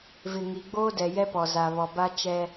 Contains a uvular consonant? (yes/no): no